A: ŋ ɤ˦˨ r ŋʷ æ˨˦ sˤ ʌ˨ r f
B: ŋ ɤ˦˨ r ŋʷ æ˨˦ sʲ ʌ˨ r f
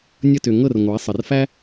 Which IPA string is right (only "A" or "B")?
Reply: A